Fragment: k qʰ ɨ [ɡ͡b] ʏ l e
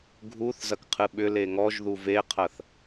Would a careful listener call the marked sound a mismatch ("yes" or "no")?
yes